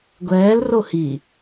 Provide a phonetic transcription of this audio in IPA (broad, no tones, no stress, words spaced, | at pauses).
ɡʷɛːl rohi